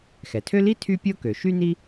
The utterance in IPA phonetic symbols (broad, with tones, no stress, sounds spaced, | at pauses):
x ɛ˩ tʰ ø˥ l i˥ tʰ y˥ pʲ o˥ k ø˩ ʃ y˥ n i˥